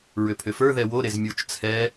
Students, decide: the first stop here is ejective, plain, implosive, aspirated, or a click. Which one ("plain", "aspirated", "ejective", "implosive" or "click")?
aspirated